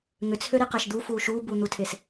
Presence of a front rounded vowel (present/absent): present